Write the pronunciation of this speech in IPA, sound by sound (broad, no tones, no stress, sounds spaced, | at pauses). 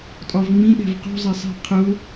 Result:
tʼ ɒ v ŋ͡m ĩ ɗ ɛ̤ v q ṳ zˤ ɛ sˤ i̤ qʰ ʊ